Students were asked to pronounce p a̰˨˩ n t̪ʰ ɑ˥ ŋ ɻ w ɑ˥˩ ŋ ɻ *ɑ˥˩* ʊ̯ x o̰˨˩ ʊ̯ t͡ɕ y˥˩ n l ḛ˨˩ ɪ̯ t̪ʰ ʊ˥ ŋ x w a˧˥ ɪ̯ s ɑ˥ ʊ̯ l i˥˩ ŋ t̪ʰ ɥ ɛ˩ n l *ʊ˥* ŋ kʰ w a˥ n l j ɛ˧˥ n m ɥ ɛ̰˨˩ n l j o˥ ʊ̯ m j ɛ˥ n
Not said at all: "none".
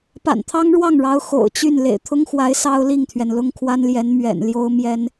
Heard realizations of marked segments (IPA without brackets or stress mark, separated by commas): ɑ˧˥, ʊ˥